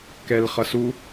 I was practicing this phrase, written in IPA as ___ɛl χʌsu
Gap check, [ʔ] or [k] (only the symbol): k